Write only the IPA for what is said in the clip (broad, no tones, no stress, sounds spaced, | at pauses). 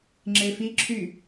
ŋ͡ǁ e f i ǁʰ y